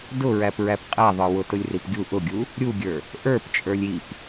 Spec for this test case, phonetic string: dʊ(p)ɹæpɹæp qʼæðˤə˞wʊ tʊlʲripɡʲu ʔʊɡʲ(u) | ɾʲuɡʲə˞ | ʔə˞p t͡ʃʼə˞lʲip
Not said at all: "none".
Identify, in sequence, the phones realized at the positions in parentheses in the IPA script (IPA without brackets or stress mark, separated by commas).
none, u